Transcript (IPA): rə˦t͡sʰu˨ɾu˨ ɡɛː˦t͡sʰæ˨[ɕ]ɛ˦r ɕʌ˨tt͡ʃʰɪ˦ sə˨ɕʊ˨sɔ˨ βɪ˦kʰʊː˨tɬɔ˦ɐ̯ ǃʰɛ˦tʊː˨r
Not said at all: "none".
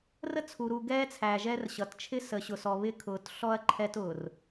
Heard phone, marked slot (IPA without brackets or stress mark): ʒ